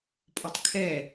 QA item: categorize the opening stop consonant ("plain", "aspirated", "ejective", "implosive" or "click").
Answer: ejective